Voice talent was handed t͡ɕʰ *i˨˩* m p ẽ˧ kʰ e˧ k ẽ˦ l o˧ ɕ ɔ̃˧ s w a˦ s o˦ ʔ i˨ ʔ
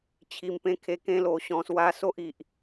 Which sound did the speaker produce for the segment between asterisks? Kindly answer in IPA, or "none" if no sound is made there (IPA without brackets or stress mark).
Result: i˨˩